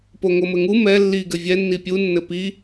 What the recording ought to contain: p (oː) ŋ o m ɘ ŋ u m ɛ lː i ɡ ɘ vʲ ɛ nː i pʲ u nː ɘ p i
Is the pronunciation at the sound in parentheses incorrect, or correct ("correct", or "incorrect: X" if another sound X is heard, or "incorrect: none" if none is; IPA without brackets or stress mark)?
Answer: incorrect: o